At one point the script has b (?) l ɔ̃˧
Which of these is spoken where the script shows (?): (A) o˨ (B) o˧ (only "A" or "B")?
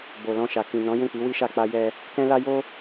A